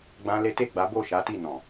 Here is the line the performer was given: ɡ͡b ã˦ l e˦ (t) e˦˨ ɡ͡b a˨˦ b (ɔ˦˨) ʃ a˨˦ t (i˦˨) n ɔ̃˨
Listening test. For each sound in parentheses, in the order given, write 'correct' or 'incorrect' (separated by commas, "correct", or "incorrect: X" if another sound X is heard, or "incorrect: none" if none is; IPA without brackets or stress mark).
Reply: correct, incorrect: o˦˨, correct